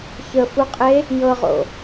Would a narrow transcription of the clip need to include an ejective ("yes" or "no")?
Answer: yes